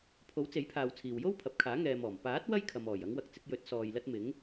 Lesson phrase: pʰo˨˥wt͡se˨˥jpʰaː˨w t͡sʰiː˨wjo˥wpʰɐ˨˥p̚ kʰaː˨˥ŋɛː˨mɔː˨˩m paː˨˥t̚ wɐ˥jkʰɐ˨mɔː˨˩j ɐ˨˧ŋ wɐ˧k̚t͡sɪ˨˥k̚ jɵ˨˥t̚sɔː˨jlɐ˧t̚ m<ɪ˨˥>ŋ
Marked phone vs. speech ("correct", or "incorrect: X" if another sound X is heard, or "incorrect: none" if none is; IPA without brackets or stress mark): correct